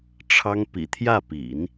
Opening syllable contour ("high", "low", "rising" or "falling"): high